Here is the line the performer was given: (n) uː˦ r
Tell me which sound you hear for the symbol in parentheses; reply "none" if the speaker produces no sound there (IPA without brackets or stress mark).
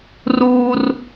r